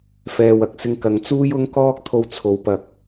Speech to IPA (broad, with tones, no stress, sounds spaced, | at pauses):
f ɛː˨ w ɐ˨ k̚ s ɪ˧ ŋ k ɐ˨˧ ŋ t͡s uː˥ j ʊ˥ ŋ k ɔː˥ k̚ t̪ʰ o˧ w t͡sʰ o˨˧ w p ɐ˨ k̚